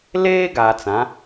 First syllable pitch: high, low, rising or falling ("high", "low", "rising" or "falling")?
high